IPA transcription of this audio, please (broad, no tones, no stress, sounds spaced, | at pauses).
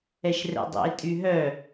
ɛ ʃ r ɛ̰ dˤ ḭ e̯ tʼ y ɦ œ